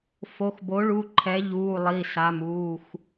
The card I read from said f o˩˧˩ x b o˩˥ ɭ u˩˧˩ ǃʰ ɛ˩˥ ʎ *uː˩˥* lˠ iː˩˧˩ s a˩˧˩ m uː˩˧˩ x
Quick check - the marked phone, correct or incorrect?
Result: incorrect